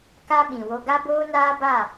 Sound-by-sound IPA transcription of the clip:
k a˦ ɓ ĩ˨ w o˦ ɡ a˦ b oː˦ n aː˦ b a˦˨

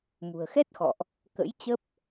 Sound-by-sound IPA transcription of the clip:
m ṳ˨˩ ə̯ x ɛ˦˥ t̚ x ɔ̰˧˨ ʔ | k ə̰˧˥ j t͡ɕ ə˦˥ p̚

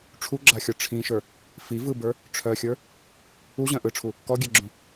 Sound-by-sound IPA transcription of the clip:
ʈ͡ʂʰ u ɡ͡ǁ a xʲ ə˞ ʈ͡ʂʰ ĩ ʃ ə˞ | f i v ɯ b ə˞ | ʈ͡ʂʰ œ xʲ ə˞ | u ʑ œ̃ ʔ ɯ ʈ͡ʂʰ u | k ɔ ɡʲ ɛ ɡ͡ǁ ũ

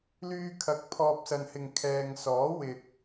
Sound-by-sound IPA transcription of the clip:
l yː˧ kʰ ɐ˨˥ k̚ pʰ ɔː˨ p̚ s ɐ˨ n h ɪ˨ ŋ kʰ ɛː˨ ŋ s ɔː˨˥ w ɪ˨ k̚

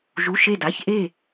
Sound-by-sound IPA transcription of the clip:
ʒ u˩˧˩ ʃ e˧˩ d a˩˧˩ ç ʔ e˧˩

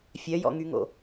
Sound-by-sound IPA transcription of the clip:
fʲ œ j ɔ̰ ŋ y ŋ o̰

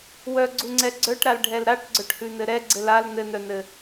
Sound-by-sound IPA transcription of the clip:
w œ ɡ͡ǀ u ŋ͡ǀ ɛ ɡ͡ǀ œ ʈ ɾ a l ɖʱ ɛ l ɾ a ʈ ɡ͡ǀ œ ʈ h ʉ n ɘ ɾ ɛ ɡ͡ǀ ɘ l a l n ɘ n œ n ɘ

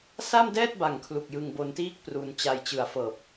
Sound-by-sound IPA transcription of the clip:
s a˥˩ m d ɛː˥˩ t̚ b a˨˩ ŋ kʰ l u˨˩ k̚ j ɯ˧ ŋ b o˧ n t iː˥˩ k̚ p r u˧ n t͡ɕ a˧ j t͡ɕ ɯ˨˩ a̯ f ɤː˨˩ p̚

